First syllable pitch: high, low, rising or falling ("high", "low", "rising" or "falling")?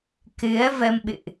rising